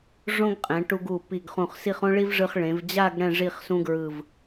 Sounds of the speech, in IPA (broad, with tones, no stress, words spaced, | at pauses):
ʐõ˥ɡqʼɛ̃˩˧ʈu˧ɡ u˧˩pi˧˩ɡχũ˧˩χsi˥˧χ õ˥ɭi˥vʐɯ˧χ ɭẽ˩˧vd͡ʑa˥˧ɡ ɽɛ̃˥˧ʐi˥˧χsũ˥ɡɹɯ˧˩v